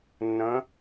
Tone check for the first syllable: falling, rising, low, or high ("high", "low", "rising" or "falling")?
rising